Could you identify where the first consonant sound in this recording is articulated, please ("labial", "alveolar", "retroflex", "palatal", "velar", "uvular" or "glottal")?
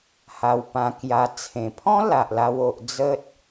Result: glottal